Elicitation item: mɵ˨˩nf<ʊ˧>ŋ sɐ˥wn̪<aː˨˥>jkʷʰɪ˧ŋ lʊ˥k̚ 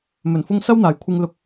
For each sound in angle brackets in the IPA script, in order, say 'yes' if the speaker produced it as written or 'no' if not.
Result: yes, no

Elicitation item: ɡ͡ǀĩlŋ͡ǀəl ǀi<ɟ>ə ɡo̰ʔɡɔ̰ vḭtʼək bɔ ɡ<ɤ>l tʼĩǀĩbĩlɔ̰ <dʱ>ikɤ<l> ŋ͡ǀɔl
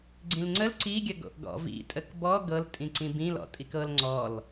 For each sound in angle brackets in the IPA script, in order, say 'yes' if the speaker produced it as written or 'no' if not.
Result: no, yes, no, yes

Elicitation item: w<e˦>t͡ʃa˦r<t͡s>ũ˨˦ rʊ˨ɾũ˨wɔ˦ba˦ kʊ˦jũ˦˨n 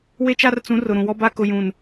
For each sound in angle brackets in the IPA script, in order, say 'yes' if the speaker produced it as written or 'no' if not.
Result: yes, yes

